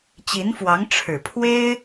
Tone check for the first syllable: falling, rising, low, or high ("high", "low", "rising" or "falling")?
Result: rising